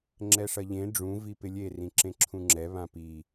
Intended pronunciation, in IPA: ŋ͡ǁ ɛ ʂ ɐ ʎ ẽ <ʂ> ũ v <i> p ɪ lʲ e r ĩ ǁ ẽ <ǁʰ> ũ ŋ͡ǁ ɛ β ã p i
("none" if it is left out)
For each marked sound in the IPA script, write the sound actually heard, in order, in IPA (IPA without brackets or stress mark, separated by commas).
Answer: ɖ͡ʐ, i, ǁʰ